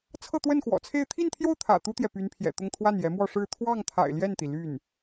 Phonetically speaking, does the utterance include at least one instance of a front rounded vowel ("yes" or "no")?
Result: yes